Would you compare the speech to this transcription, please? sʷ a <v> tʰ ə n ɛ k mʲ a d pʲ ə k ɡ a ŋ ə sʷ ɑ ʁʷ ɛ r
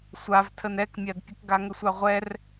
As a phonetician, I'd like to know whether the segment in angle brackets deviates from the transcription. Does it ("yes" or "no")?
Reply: no